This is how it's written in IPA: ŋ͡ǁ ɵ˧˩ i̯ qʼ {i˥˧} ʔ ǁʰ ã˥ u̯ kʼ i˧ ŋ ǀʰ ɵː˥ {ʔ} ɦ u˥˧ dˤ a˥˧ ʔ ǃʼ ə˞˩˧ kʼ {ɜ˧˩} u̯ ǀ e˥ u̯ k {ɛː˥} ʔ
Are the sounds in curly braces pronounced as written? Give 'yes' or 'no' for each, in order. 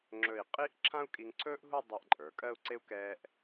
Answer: yes, yes, no, yes

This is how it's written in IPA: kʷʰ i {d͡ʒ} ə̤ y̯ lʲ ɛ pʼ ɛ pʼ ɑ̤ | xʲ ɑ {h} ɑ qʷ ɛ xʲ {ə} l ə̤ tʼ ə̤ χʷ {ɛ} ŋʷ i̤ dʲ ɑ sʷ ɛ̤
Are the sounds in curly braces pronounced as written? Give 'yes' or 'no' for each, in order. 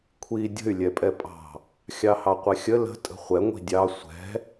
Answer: no, yes, yes, yes

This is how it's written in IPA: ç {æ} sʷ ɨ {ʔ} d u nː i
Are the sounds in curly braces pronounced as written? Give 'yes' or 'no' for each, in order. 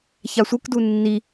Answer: no, no

